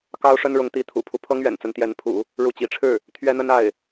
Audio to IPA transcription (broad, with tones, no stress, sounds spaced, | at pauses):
k ɑ˥ ʊ̯ ʂ ə˥ n ɻ ʊ˧˥ ŋ t̪ i˧˥ t̪ʰ ṵ˨˩ pʰ u˧˥ pʰ ɤ˥ ŋ ɥ ɛ̰˨˩ n t͡s ə˧˥ n t̪ j ɛ˧˥ n pʰ ṵ˨˩˦ | ɻ u˧˥ t͡ɕ ḭ˨˩ ʈ͡ʂʰ ɻ̩˥˩ | t̪ʰ ɥ ɛ˥ n̪ ə˥ n a˥˩ ɪ̯